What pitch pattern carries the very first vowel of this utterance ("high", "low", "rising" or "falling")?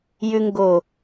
high